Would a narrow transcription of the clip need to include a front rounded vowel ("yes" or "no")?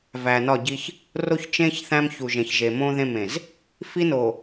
no